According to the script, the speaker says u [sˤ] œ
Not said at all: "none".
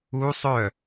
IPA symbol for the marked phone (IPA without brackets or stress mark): sˤ